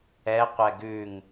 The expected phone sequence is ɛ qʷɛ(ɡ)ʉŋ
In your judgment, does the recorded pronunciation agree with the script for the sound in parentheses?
yes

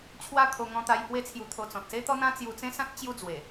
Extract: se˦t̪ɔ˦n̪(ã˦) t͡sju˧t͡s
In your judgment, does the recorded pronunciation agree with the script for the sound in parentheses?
yes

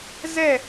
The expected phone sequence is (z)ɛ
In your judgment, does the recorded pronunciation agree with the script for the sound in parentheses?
yes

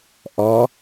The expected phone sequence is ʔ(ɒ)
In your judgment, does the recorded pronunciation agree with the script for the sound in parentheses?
yes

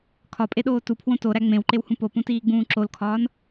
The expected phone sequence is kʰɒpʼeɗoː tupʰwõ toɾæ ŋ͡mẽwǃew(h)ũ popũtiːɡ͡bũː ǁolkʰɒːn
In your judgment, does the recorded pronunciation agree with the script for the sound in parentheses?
yes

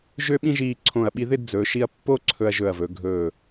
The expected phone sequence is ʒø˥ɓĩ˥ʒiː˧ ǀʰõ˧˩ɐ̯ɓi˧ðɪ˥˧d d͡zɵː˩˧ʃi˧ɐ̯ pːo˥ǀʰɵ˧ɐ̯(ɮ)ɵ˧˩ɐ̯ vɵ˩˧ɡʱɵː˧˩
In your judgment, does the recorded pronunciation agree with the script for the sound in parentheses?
no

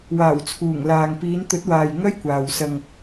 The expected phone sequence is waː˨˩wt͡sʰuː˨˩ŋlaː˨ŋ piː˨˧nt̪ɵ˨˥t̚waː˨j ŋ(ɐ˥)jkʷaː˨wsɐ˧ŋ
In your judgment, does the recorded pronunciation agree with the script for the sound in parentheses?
yes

